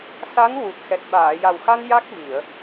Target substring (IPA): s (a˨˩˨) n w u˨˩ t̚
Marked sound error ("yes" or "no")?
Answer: yes